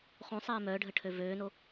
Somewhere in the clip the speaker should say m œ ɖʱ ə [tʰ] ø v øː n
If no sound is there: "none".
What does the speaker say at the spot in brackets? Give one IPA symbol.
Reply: ʈʰ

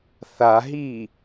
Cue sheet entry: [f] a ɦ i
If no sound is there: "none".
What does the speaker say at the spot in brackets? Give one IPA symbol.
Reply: θ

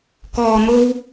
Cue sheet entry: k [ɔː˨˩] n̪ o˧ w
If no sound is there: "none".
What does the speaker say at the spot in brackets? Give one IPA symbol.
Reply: ɔː˨˩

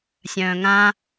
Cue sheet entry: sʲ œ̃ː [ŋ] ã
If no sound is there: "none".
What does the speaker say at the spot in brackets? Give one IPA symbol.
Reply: ŋ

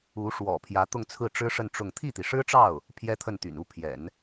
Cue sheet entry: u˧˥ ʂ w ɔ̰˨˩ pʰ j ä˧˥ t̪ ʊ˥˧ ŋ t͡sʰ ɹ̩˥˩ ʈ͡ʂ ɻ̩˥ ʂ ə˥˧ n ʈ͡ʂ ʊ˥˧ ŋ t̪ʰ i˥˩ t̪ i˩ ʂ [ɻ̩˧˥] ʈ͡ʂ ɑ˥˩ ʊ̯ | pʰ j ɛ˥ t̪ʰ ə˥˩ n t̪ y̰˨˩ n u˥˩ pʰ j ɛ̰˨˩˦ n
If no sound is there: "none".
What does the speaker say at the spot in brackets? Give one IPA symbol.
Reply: ɻ̩˥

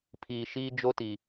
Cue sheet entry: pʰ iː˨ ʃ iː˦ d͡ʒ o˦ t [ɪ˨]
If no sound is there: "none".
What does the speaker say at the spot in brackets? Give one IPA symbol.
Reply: i˨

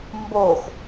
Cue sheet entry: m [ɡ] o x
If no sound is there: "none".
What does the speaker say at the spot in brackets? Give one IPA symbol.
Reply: b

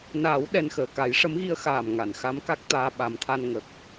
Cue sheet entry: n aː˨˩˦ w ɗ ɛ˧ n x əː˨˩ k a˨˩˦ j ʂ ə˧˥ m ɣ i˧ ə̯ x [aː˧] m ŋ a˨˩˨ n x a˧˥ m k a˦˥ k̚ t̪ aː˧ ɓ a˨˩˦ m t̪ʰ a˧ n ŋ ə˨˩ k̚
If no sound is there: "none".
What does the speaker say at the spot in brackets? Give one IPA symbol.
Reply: aː˨˩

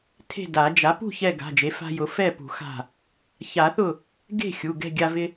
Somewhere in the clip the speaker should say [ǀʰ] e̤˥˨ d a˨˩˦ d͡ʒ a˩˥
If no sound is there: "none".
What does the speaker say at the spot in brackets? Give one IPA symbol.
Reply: tʰ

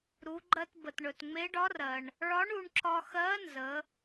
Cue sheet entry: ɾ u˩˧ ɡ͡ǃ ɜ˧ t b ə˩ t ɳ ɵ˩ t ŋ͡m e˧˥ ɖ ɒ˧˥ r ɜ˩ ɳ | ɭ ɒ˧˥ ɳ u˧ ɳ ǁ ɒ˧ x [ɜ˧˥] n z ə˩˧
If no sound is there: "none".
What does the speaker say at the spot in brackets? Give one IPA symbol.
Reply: ɜ˧˥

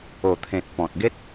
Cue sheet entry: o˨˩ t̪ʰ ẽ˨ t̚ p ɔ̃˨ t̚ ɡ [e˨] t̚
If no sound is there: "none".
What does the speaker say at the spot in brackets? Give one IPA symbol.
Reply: e˦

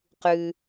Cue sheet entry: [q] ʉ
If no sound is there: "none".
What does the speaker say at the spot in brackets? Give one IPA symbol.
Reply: q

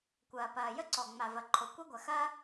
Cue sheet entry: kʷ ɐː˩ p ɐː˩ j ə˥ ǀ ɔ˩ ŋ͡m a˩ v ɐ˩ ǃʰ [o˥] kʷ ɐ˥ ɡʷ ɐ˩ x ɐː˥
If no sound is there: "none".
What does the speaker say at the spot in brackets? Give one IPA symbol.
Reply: o˩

